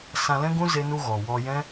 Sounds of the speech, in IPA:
s ã˧ l ɛ̃˦ ɡ ũ˦ z e˦ n u˦ ɣ ɔ˨ w ɔ˧ j ɛ̃˦

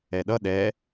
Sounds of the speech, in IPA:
ɛ ɗ ʌ ɗ ɛ

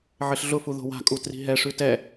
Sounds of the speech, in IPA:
ʕ ɘ ɬ ɮ ʊ f u ð o̤ w a̤ kʼ u t r i̤ ɦ ɛ ʂ ʉ t ɛ

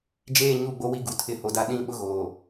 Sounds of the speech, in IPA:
d͡ʒ eː˦˨ ɲ u˦˨ ɡ͡b o˦ w i˦ ɡ u˨ tʰ ɪ˦˨ h o˨ d a˦ ɗ ĩ˦ ɓ ʊ˦ ɣ oː˨

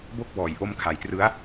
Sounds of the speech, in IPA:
b o˥˩ k̚ b ɔː˨˩ j ʔ o˧ m kʰ a˩˦ j t r ɯ˦˥ a̯

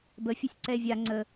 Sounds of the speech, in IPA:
b ə fʲ ə sʲ ǀ ɛ e̯ vʲ a ŋ͡ǀ ə

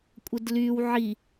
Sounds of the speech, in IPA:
kʷʼ ə d l y w ʕ i

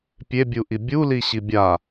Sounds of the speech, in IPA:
pʲ e bʲ u ʔ i bʲ u l i ɕ i bʲ a

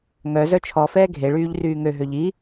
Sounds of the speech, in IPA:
ŋ œ z œ t͡ʃʰ ɔ f ɛː ɡʱ e ɭ yː ʎ r yː ŋ ø ɦ ø ʎ i

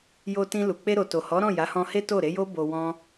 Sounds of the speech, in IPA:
j o˧ t ĩ˧ l u˨ k͡p e˧ ɾ o˨ t o˨ h ɔ˨˦ ɾ ɔ̃˦˨ j a˨˦ h ɔ̃˧ h e˦ t o˦˨ ɾ e˨˦ j o˦ b o˧ w ɔ̃˦

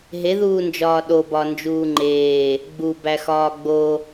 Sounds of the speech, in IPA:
ɦ e ð uː n d͡ʒ ɒː ɗ o b ɒ n d͡ʒ uː ŋ͡ǃ eː | ɡ͡b u b æ x ɒː ɡ͡b o

